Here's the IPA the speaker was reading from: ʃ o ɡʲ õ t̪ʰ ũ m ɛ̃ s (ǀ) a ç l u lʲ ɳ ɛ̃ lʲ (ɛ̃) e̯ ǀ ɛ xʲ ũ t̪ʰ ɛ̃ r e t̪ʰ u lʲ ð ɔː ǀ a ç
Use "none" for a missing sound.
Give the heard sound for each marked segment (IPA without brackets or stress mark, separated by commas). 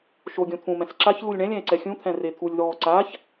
ǁ, ɛ̃